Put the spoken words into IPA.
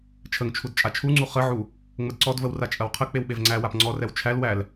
t͡ʃʰ ə ŋ t͡ʃʰ u d t͡ʃʼ a t͡ʃʰ u ŋ͡ǀ u χ ə ʕ u | ŋ͡m ə d ǀ ɔ d v ə w r a t͡ʃʼ ɐ w qʰ ə k͡p e w ɓ e v ŋ͡ǀ æ w a p ŋ͡ǀ ɔ r ɛ w t͡ʃʰ æ l w æ l

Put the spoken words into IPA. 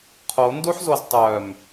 qʰ o n d u ħ z o z tˤ œ m

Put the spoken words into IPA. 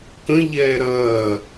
k ə̃ ʎ ɛː ɾ ɐː

